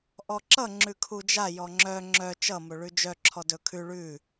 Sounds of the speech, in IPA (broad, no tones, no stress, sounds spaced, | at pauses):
ʔ ɔ ǁ ʌ ŋ͡ǁ ʉ kʰ u d͡ʒ a j ɔ ŋ͡ǁ œ ŋ͡ǁ œ t͡ʃ ʌ m o ɭ ʉ d͡ʒ œ ǁʰ ɔ d ɵ kʰ ʉ ɭ ʉ